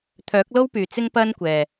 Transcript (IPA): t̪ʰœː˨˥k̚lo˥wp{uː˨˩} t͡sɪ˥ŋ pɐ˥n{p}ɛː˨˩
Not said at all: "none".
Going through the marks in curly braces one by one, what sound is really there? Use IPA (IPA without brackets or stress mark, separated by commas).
yː˨˩, kʷ